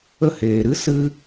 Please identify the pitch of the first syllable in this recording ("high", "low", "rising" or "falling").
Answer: falling